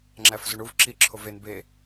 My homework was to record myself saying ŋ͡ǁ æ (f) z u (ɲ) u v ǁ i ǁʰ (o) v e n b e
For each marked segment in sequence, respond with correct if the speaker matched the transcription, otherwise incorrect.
correct, incorrect: ɳ, correct

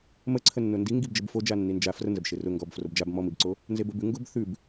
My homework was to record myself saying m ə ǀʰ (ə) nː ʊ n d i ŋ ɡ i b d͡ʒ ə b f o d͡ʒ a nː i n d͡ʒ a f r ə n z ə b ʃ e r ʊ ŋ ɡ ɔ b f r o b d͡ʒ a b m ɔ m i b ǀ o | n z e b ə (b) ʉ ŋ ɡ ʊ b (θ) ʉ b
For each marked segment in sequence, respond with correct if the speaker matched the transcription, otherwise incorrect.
correct, correct, correct

